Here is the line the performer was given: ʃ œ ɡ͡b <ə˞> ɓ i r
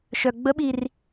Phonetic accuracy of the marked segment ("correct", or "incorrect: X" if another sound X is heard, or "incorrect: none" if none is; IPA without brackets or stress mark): incorrect: ə